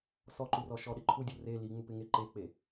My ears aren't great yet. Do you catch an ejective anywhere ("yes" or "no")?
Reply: no